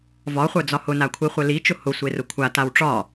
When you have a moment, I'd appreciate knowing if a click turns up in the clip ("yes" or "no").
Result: no